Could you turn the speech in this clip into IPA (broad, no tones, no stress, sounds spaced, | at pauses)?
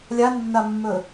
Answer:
lʲ a nː a mː ɵ